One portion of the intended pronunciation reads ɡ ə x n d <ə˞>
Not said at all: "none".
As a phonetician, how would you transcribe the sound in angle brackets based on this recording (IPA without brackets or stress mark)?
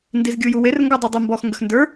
ə˞